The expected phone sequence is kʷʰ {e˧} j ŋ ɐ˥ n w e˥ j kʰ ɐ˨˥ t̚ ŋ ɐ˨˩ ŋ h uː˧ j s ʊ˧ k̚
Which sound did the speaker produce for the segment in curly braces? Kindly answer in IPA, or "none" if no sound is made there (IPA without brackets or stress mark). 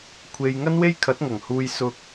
e˧